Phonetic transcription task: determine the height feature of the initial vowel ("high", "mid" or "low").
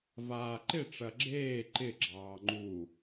low